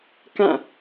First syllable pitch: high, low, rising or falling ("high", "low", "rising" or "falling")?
falling